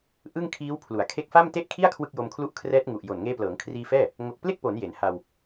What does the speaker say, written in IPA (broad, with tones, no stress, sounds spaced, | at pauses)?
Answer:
ʔ ɯ˥˩ ŋ kʰ iː˦˥ w pʰ l u˩˦ a̯ kʰ e˦˥ k̚ f a˥˩ m t e˥˩ ʔ kʰ i˥˩ a̯ kʰ w ɯ˥˩ k̚ j o˧ m kʰ l u˥˩ ʔ kʰ r ɛː˦˥ t̚ ŋ u˨˩ ʔ j o˨˩ n ŋ eː˧ p l ɤː˩˦ ŋ kʰ r iː˧ f ɛː˥˩ | ŋ o˨˩ k̚ p l e˥˩ k̚ p o˩˦ n j e˩˦ n h a˧ w